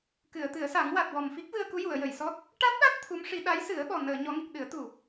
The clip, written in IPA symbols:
k ɨ˨˩˨ ə̯ t̪ ɨ˨˩˦ ə̯ s a˨˩˦ ŋ w a˨˩ t̚ w ɔ˨˩ m f i˦˥ k̚ v ɨ˧ ə̯ k u˧˥ j u˨˩˨ ə̯ j ə˨˩˨ j s ɔ˦˥ t̚ | ʈ a˦˥ t̚ ɗ a˦˥ t̚ t̪ʰ u˧˥ m ʂ i˧˥ ɗ a˧˥ j s ɨ˨˩˦ ə̯ ɓ ɔ˨˩ n əː˨˩˨ ɲ ɔ˨˩˦ ŋ i˨˩ k̚ ɗ ɨ˨˩˦ ə̯ t̪ u˨˩

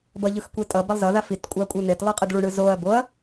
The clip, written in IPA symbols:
b ʌ ʎ ɯ x kʷ e tʼ ʌ b a lˠ z ʌ ð a f i t kʷʼ a kʷʼ ɯ n̪ e t lˠ ɯ qʼ ɯ d ɭ u ɳ ɯ z o ɐ̯ b o ɐ̯

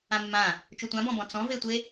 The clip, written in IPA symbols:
ã mː ã | t͡ʃ u tʷ ã b ɔ̃ b ɔ̃ t͡s ɔ̃ v e tʷ e

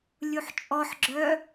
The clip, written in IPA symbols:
lʲ u ħ t͡ʃʼ ɔ ħ ɡ͡ǁ œ

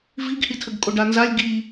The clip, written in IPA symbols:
v i ɡ h i tʰ ə ɡ kʼ o ɖ a n z a lʲ ɡ i

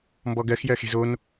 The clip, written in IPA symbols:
m b ɔ ɡ ɜ x j ɜ x e̤ z o n

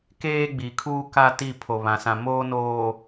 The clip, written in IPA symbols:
k eː˦ ɡ͡b i˨ kʰ uː˦ k a˦ t i˦˨ pʰ o˨ β ã˨ s ã˨ m oː˦ n oː˨

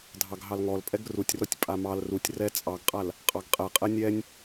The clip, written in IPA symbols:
dʱ ɑ ɡ ɦ ɑ l ŋ ɔ l pʼ ɛ ɡ r u tʲ r ɔ tʲ pʼ a m ɑ l r u tʲ r ɛ t͡sʼ ɑ ɡ qʼ a l | qʼ ɑ ɡ qʼ ɛ qʼ ɛ nʲ ɛ nʲ

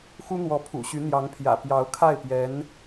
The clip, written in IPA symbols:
x u˥ n̪ w ɔ˧˥ pʰ ṵ˨˩ ɕ y˧˥ n̪ j ɑ˧˥ ŋ pʰ j ä̰˨˩ p j ɑ˧˥ ʊ̯ kʰ a˥˩ ɪ̯ p j ɛ˧˥ n

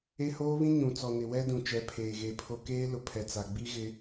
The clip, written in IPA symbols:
e˦ h oː˦ β ĩ˦ ɲ ũ˨ t͡s ɔ˨ n ɪ˨ w ɛ˦ d ũ˨ t͡ʃ ɛ˨˦ pʰ eː˨ ɣ e˨ pʰ o˦ k eː˦ l ʊ˨ pʰ ɛ˨ t͡s a˨ ɡ͡b i˦ ɣ ɪ˦

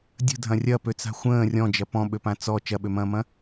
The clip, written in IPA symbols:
dʲ ə̤ dʱ ɐ̃ rʲ ɐ p ø t͡s a̤ xʷ ə̃ː rʲ ɔ̃ d͡ʒ ɐ p ɔ̃ ɓ ø p ã t͡s ɔ t͡ʃ ɐ ɓ ø m ɐ̃ː m ɐ̃

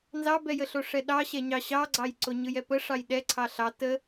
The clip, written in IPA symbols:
n z ɑ b ɛ j ə ɬ o ʂ ɛ ɗ ɑ ɕ ɛ ɲ ɑ ɕ ɑ ɡ͡ǀ ɑ j ǀ o ɲ ɯ j ɛ p ə ʂ ɑ j ɗ ɛ ǀʰ ɑ ɬ ɑ t ə

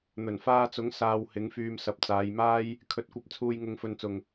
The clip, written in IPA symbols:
n̪ ɵ˨˩ n f aː˧ t͡s ʊ˨˥ ŋ s aː˧ w h ɪ˨˥ ŋ f yː˧ m s ɐ˨ p̚ t͡s aː˨˧ j m aː˥ j | kʰ ɵ˨˥ t̚ kʷ ɐ˧ p̚ t͡sʰ uː˧ j ŋ ʊ˧ ŋ f ɵ˧ n t͡s ʊ˨ ŋ

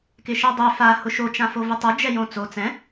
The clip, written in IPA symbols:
k ɪ ʃ ɛ dˤ ʏ f a h ʊ ʃ o t͡ʃ ã f o v ɪ tˤ ʊ d͡ʒ ɛ j õ t͡s o t͡s ɛ̃

